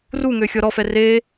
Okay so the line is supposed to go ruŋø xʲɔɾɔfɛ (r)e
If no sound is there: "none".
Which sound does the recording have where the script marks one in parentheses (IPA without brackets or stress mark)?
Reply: r